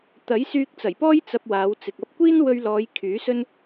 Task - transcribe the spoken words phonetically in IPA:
t̪ɐ˨˥jsyː˧k̚t͡sɐ˨˩jpɔː˥j t͡sɐ˧p̚waː˨˧w t͡sɪ˨k̚ ɐ˧p̚kʷiː˥n wɵ˧ɥ lɔː˨˧j kʰyː˨˥sɵ˥n

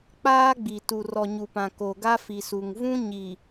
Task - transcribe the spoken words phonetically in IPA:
k͡paː˦ ɡ͡bi˨ tu˨rɔ˨ɲu˨pã˨ ko˨ɡa˦fi˨su˨ŋ vũ˦ɲi˨

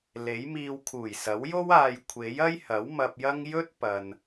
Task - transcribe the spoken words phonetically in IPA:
le˨˥jmiː˧w kʰuː˨˩jsɐ˨˥wjo˥w aː˨jkʷʰe˨˥j ɐ˥jhɐ˨˥w mɐ˧p̚jɐ˥ŋ jɵ˥t̚pɐ˨n

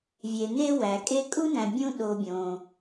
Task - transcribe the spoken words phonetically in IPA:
vʲe˨ne˥wæ˩ kʼe˦kʼu˥næ̃˨bʲũ˦ ɗo˨bʲõ˩

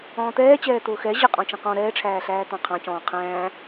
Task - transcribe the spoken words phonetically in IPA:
ɔ̃ːt̪ɛːt͡ɕɛː t̪ʊːxɛ ʑɪqʼɔ̃ t͡ʃə̃qɔ̃ ɾɛːʈ͡ʂʰæːɬæː t̪ɑ̃qʰɑ̃cɔ̃ː qʰæ̃ː

